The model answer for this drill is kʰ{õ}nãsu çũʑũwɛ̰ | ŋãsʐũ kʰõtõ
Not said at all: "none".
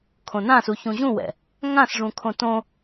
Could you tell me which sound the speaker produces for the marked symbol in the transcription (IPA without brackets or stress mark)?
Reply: õ